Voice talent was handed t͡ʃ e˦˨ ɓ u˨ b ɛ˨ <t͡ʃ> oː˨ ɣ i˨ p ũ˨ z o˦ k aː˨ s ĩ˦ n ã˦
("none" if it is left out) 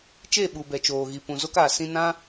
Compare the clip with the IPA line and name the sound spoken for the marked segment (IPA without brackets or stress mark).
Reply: t͡ʃ